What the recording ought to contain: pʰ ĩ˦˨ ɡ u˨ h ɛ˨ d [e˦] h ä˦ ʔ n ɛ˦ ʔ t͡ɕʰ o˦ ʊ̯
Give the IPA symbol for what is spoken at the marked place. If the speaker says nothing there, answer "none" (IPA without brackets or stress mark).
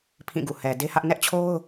e˦